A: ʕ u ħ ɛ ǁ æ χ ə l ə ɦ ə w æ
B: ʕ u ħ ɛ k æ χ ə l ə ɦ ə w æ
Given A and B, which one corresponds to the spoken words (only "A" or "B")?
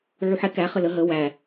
B